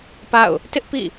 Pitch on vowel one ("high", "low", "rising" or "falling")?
falling